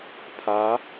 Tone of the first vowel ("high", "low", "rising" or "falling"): rising